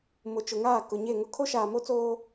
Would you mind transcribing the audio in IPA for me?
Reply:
m ʊ˨ t͡ʃ ʊ˨ ŋ aː˦˨ k ʊ˨ ɲ e˦˨ ŋ ʊ˦ kʰ o˦ ʃ aː˨ m o˦ t͡s oː˦

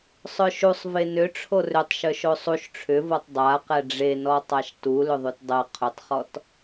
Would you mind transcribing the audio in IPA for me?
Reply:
sˤ œ ʃ u sˤ v e n ʏ ʈ͡ʂʰ o r ʏ tˤ ʃ œ ʃ o sˤ u ʃ ʈ͡ʂʰ ʏ v ɤ tˤ dˤ a q ɛ ɖ͡ʐ e n ɔ tˤ a ʃ t u l ʏ ðˤ ʉ t dˤ ɤ qʰ ʏ tˤ χ ɔ t

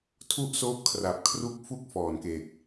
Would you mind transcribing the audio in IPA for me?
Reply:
tʰ u˥˩ ʔ s oː˦˥ p̚ kʰ r a˨˩ p̚ kʰ r u˦˥ k̚ f u˥˩ k̚ f ɔː˨˩ n k e˨˩ k̚

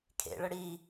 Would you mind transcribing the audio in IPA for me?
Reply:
kʰ ḛ ɭ ə ɽ i

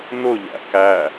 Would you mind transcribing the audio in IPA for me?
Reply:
n ʊ ʎ æ̰ k æ

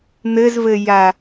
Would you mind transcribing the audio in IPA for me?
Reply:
n̪ ɘ z v ɘ j a

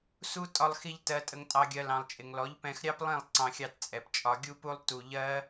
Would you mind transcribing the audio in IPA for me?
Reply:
s u˦ tʼ ɒ˧ lˠ x i˧ ʎ t ɜ˨ tʼ ə˨ ŋ tʼ ɑ˨ ɡʲ ɜ˨ l ɑ̃˨ lˠ t͡ʃʼ ɪ˨ ŋ l ɔ˨˦ ʎ p ɛ̃˧ x ɾʲ ɑ˦ p lˠ ĩ˦˨ lˠ ǀ ɑ̃˧ xʲ ɑ˧ t t͡sʼ ɛ˨ p t͡ʃʼ ɒ˧ ɡʲ u˦ p u˦ lˠ t u˧ ʎ ɜ˦

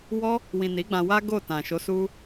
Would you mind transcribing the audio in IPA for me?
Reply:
w ɔ˦ | w ĩ˨ n i˨˦ ɡ͡b ã˧ w a˦ ɡ o˦˨ t ã˨ ʃ o˨˦ s u˦

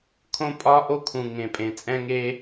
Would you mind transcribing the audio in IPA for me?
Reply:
kʰ õ˦ pʼ ɒ˦ ʔ o˦ kʰ ũ˨ ŋ ẽ˨ pʼ ẽ˨ t͡sʼ ɛ̃˦ ŋ e˧

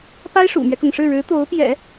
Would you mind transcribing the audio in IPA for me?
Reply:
p a˥ ɪ̯ ʂ ṵ˨˩ m ɥ ɛ˦ k ʊ˩ ŋ ʂ ɻ̩˥˩ ɻ ɻ̩˧˥ t̪ o˧˥ ʊ̯ p j ɛ̰˨˩˦

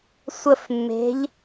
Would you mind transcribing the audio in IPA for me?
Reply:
sʷ ə f mː e̤ ʎ

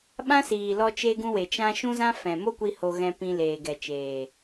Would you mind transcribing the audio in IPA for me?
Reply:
ɓ ã˦ s iː˨ l ɔ˧ t͡ʃ e˧ ɡ ũ˧ w e˨ t͡ʃ ã˧ ʃ ũ˦ z ã˦ f ɛ̃˨ m o˦ kʷ i˧ h o˧ ɣ ɛ̃˧ p ĩ˧ l eː˨ ɡ ɛ˨ t͡ʃ eː˨

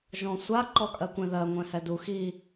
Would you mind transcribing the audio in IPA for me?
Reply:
ʒ ɔ̃ sʷ a ǃ ɔ kʼ ɜ kʷ ɛ̃ ð ɜ ŋʷ ɛ̃ h ɛ d u x i

